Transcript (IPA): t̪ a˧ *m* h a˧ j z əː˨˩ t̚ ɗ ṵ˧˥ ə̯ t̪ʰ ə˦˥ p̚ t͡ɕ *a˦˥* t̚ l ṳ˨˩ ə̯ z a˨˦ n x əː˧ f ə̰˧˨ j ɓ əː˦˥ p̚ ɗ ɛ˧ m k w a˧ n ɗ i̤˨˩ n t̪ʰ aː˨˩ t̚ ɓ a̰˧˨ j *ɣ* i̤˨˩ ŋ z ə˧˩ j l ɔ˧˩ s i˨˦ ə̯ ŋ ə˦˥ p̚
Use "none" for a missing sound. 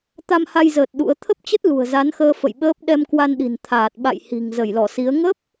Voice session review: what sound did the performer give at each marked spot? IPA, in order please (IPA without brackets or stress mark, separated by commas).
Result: m, ə˦˥, h